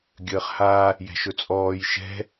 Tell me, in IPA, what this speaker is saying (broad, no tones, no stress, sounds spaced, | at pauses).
ɡʲ əː χ h a | j ɛ̤ ʃ ɵ t͡sʼ ɔː j ʃ ɛ̤